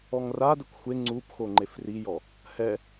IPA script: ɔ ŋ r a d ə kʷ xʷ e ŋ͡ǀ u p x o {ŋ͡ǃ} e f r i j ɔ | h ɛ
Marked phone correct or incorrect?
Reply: correct